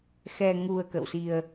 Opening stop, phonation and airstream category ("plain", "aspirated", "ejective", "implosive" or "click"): plain